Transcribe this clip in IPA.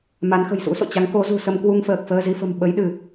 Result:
ma˨˦nxə̤˨˩jsṵ˧˥ so̰˧˨t͡ɕa˨˦ŋ ko˨˦ zṳ˨˩sə˧mkwu˧ŋfəː˨˩k̚ fəː˧zi˧fə̤˨˩m ɓə˨˦jɗɨ˧˩˨

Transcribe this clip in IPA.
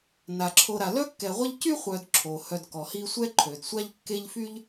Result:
na˩ǁʰo˨ ɾa˩lœ˥kːɛ˨ʁʷɛ˥ʎ cy˥χʷœ˨dǁʰo˩ hœ˨dkɔ˩hi˦ sʷɛ˦ǃʰø˩dsʷa˦ʎ kːe˦ʎfy˥ʎ

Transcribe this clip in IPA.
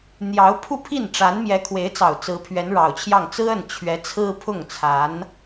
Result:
n̪jɑ˧˥ʊ̯pʰu˥˧pʰi˥˩nʈ͡ʂa˧˥n mjɛ˧˥kʰwe˧˥ɪ̯t͡sɑ˨˩ʊ̯ t͡sɹ̩˧˥pʰɥɛ˧˥nɻɑ˨˩ʊ̯t͡ɕʰjɑ˥˩ŋ t͡sɹ̩˥ə˥˩n t͡ɕʰɥɛ˧˥ t͡sʰɹ̩˥pʰʊ˥˩ŋt͡sʰa˧˥n

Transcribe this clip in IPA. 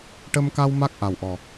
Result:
ʈə˧mka˧w ma˦˥k̚ ʔa˨˩wʔɔ˨˩

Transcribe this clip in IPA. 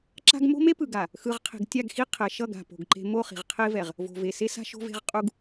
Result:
ǁa̤˦ɡ mo̤˦me˦pɯ˨ɡa˨ | xɯ˨ʁqʰe̤˨ɡ tʲa˦˨ɡxi˦ qʰɛ˨ʃʌ˦˨ɡ a̤˨po̤˨ɡǃe̤˦ mo˦˨χi̤˨ʁqʰe˦vɛ˨ʁ | vo̤˨ ve˨se˦sa̤˦ ʃo̤˦ve̤˦ʁ qʼu˦ɡ

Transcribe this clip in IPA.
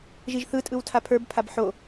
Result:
ʒiʒθɯtʼɯw tʰapʰə˞bpʰab ħo

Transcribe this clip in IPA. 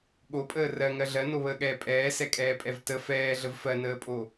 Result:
ɠopʼəː rɜŋɜ ɮɜnoβəːɠɛː pʼɛːsɛkʼɛːpʼɛv tə fɛːɮəv fɜnəːpʼo

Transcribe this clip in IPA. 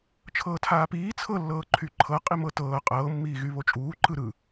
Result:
t͡ʃʰɤːtʰaːpiː t͡sʰɤlːɤː ǃʰyǃʰɤ qʼimɤtɤː qʼɤːmːiːɣy βot͡ʃʼuː ǃɯɾɯ

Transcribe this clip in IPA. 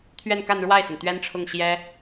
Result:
t̪ʰɥɛ˥˧nka˥˧nɻwa˥˩ɪ̯sə˩n t̪ɥɛ˥nʈ͡ʂʰʊ˥˩ŋ ɕjɛ˥

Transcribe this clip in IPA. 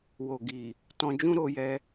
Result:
wo˨ ɡi˨ | tɔ̃˧d͡ʒũ˦ ɾo˧jɛ˧

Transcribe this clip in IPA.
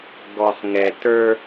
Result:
ɡɔ˨χŋɛ˨tə˞˦

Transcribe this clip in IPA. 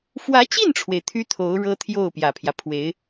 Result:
fwä˧˥t͡ɕi˥˩nʈ͡ʂʰwe˩ɪ̯ t̪ʰy˥t̪ʰo˧˥ʊ̯ ɻɤ˥ t̪ʰjo˥˩ʊ̯ pjä˨˩pʰjä˦ pʰwe˧˥ɪ̯

